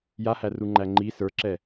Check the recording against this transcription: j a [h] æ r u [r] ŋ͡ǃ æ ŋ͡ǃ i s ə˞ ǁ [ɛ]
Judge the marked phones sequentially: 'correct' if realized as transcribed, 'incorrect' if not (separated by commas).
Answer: correct, incorrect, correct